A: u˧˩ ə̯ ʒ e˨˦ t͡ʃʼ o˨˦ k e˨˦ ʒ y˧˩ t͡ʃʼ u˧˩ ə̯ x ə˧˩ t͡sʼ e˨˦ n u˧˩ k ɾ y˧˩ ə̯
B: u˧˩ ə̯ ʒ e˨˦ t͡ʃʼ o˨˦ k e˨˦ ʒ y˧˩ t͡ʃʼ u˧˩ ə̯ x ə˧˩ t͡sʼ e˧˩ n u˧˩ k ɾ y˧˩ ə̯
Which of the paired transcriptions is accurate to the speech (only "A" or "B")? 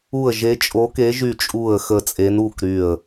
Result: A